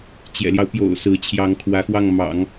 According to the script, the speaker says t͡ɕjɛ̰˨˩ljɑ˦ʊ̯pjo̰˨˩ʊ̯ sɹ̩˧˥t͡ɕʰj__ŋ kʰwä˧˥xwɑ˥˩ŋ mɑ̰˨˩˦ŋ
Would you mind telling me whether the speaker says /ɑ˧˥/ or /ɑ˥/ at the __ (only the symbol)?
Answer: ɑ˧˥